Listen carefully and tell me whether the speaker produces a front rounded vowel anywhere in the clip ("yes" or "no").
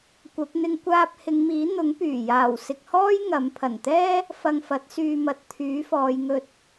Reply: yes